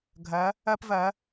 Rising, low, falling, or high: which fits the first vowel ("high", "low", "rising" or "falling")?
rising